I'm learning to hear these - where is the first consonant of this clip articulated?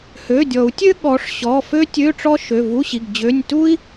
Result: throat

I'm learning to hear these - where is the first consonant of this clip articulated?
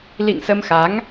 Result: tongue tip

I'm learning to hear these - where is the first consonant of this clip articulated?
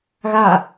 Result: velum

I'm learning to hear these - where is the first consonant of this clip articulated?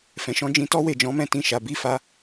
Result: lips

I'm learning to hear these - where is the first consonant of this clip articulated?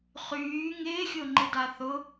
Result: uvula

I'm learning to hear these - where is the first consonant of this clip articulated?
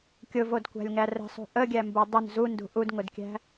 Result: velum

